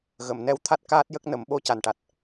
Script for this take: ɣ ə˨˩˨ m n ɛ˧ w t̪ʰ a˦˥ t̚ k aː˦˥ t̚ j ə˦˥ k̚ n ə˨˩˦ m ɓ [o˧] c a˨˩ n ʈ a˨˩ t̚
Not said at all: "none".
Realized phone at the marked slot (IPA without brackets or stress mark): o˧